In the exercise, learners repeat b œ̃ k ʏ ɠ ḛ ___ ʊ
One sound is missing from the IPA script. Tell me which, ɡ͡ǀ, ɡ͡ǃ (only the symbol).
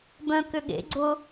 ɡ͡ǀ